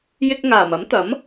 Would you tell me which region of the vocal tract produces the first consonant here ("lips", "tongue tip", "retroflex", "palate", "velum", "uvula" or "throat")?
palate